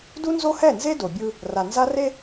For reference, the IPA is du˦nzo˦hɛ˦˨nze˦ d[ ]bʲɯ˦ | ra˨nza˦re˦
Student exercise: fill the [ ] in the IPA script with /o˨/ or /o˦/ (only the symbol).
o˨